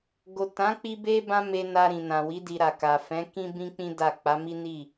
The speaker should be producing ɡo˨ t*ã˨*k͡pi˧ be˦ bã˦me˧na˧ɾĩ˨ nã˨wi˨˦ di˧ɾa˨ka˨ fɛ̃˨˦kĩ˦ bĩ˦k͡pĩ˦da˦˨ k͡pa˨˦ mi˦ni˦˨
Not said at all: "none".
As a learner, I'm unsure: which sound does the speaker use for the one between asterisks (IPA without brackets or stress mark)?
ã˨˦